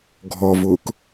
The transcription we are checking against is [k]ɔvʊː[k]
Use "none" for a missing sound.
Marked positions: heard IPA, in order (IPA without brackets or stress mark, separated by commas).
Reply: ɡʱ, k